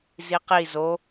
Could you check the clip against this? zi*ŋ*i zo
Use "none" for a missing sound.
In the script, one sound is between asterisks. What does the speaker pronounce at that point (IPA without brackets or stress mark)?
q